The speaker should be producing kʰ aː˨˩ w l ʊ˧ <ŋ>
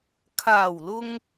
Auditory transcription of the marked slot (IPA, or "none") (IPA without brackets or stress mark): ŋ